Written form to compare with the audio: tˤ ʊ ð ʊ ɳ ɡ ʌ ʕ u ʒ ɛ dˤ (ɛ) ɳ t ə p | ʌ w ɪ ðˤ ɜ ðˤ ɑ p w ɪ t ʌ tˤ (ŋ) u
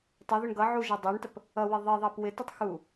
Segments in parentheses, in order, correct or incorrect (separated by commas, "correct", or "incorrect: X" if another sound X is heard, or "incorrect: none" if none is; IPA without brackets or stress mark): incorrect: æ, incorrect: x